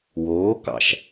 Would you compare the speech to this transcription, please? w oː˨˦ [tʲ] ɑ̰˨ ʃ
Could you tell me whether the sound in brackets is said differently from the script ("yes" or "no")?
yes